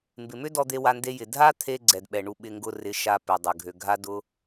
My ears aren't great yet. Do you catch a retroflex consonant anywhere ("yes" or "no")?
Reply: yes